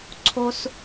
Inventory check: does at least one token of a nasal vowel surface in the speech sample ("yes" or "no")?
no